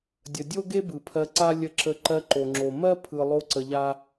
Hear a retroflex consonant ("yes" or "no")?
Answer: no